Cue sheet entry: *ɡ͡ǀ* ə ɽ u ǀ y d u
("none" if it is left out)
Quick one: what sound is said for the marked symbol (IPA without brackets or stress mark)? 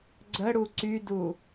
ɡ͡ǀ